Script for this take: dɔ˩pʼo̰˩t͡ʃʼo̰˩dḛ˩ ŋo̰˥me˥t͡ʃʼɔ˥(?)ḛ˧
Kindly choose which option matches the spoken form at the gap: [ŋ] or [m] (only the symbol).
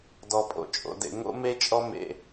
m